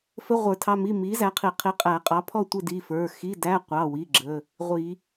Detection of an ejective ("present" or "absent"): present